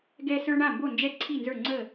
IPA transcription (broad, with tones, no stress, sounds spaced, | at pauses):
ɡ ɛ˦ s ə˞˦ ɳ a˥˨ m b o˥˨ n d͡ʒ ɛ˥˨ ǀʰ i˥˨ n z ə˞˥˨ ŋ͡ǀ əː˥˨